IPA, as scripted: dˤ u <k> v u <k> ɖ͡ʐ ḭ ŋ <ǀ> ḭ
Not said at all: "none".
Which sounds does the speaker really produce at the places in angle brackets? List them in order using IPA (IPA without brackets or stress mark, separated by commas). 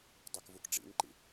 k, k, ǃ